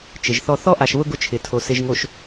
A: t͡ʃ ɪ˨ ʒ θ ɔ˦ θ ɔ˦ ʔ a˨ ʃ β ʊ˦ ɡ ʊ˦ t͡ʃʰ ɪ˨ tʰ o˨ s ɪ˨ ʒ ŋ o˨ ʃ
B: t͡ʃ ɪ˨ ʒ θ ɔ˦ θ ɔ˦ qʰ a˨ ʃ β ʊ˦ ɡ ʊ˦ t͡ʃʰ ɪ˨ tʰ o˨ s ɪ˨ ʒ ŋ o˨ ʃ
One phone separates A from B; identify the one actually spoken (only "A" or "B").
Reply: A